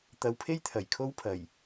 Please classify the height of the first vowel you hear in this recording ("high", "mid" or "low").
low